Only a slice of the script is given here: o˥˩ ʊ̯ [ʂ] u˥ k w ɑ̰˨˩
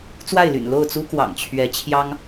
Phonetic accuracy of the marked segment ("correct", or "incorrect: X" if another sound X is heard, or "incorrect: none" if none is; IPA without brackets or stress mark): incorrect: t͡s